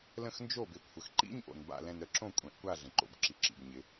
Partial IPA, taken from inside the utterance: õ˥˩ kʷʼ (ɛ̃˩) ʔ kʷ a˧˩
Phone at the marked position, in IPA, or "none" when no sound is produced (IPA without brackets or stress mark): ɛ̃˩˧